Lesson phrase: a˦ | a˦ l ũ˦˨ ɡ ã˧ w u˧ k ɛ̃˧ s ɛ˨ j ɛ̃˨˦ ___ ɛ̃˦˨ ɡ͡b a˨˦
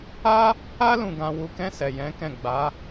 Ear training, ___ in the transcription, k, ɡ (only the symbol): k